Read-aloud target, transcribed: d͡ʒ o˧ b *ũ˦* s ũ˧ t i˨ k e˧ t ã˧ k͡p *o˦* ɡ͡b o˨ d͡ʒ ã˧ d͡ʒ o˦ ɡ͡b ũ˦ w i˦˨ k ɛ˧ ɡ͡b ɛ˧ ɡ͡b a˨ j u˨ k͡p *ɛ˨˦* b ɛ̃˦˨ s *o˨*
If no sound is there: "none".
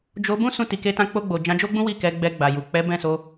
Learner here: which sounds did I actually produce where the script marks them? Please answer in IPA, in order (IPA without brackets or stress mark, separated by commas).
ũ˦, o˧, ɛ˨˦, o˧